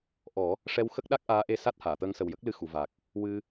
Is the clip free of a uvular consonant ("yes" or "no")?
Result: yes